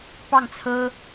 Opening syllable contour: falling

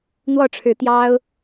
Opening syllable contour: falling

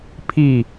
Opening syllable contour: falling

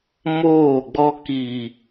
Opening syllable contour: falling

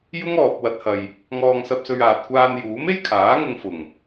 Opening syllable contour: high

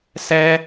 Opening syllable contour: high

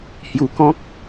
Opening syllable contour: low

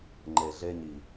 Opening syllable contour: low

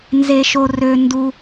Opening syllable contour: high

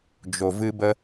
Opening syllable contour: low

